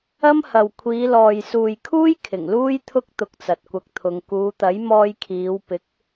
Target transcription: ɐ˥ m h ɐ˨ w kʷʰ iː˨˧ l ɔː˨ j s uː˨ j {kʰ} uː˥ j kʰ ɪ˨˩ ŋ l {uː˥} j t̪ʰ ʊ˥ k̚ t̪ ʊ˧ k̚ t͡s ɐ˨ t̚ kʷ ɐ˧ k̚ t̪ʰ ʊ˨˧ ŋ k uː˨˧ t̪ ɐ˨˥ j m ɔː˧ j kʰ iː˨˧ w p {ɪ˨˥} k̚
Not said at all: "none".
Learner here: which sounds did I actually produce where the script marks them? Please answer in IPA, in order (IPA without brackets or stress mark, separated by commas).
kʰ, uː˥, ɪ˨˥